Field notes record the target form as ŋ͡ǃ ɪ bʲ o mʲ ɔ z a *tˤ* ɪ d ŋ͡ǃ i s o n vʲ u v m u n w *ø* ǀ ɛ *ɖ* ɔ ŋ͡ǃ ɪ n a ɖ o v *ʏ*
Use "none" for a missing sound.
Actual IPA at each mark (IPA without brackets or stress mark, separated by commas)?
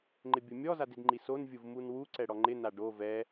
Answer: d, u, ɽ, ɛ